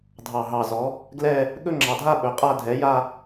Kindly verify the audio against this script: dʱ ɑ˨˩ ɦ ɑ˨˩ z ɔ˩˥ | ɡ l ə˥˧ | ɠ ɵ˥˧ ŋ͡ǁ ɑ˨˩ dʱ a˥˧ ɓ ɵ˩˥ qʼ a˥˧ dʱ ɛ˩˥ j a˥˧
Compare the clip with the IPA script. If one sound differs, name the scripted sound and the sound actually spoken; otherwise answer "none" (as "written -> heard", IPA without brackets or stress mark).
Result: ə˥˧ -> ɛ˥˧